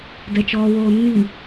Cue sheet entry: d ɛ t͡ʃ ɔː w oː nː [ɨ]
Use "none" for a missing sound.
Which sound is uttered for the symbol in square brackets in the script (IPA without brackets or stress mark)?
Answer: i